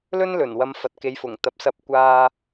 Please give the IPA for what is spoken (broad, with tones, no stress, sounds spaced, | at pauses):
l ɵ˥ n l ɵ˨˩ n w ɐ˨˧ m f ɐ˨ t̚ k e˨˥ j f ʊ˨˩ ŋ t̪ ɐ˨ p̚ s ɐ˧ p̚ kʷ aː˧